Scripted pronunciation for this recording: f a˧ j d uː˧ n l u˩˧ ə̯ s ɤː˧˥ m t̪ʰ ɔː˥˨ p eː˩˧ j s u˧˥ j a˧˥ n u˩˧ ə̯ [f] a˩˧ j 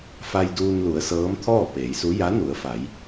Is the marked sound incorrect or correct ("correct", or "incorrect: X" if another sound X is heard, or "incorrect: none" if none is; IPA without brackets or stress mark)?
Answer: correct